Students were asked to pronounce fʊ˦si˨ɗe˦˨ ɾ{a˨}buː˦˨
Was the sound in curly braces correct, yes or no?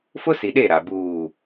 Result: yes